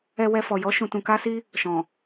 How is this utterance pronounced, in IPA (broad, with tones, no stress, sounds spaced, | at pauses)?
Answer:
ɛ˧ w ɛ˧ f ɔ˨ j ɔ˨˦ ʃ ũ˧ t ũ˧ k a˦ s i˦ | ʃ ɔ̃˨